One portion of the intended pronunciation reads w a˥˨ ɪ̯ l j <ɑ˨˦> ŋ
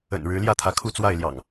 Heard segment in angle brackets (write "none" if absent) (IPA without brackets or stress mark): ɑ̰˨˩